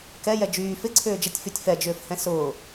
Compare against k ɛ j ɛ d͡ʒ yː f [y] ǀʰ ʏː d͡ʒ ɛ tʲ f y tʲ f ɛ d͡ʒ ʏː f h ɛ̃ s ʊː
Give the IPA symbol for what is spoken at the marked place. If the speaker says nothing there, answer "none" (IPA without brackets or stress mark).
ɪ